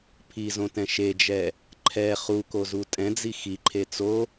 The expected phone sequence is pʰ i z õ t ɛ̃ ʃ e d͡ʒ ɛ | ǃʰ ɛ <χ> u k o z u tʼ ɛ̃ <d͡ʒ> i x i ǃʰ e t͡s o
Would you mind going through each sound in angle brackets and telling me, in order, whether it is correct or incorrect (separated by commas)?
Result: correct, incorrect